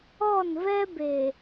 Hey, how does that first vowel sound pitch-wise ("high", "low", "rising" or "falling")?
falling